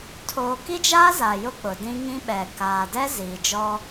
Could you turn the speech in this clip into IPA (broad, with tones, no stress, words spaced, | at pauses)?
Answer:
tʰoː˨ki˦d͡ʒaː˦ za˨jʊ˦ k͡pʊ˨dĩ˦ ŋĩ˦ɓɛ˨ kaː˨dɛ˦ ziː˨d͡ʒɔ˦